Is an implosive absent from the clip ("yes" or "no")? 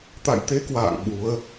no